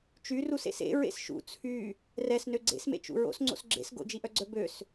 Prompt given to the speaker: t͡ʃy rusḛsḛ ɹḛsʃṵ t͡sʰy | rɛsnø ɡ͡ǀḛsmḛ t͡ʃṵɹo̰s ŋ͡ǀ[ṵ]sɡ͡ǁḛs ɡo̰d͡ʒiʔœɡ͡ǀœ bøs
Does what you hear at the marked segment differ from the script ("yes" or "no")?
yes